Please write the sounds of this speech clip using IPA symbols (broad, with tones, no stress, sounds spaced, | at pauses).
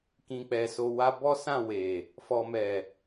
k ĩ˨ k͡p ɛ˨ s o˨ w a˧ b ɔ˦ s ã˦˨ w e˨ | f ɔ˨ m ɛ˨